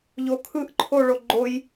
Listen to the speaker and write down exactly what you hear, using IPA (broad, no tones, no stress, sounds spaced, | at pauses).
ʎ o kʰ ɯ ʔ ǃʰ o ɭ o ɡ͡ǃ o j